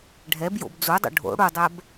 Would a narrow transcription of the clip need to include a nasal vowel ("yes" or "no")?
no